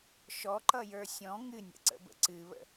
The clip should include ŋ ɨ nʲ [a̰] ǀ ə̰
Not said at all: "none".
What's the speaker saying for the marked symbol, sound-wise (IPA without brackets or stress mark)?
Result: ə̰